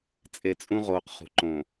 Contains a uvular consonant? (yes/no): yes